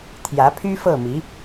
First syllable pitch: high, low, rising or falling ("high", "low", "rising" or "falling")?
rising